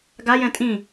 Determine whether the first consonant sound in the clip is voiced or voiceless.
voiced